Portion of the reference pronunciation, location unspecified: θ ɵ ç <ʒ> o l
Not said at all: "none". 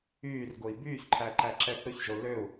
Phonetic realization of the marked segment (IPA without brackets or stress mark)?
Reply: ʒ